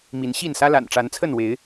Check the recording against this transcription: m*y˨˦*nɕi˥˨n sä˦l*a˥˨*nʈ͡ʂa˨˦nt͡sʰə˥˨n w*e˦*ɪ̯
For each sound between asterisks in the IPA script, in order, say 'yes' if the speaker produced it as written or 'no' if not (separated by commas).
no, no, no